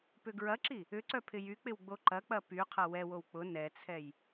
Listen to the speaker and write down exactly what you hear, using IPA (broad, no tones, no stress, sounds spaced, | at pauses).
p ʏ ɡ ɹ ɐ ǁ i | ʏ ǀ œ pʰ ɪ j y k͡p ɪ w ɡ͡b o ǃ ɐ k͡p ɐ p y qʰ ɐ w ɛ w o w k͡p ʊ n ɛ t͡sʰ ɛ j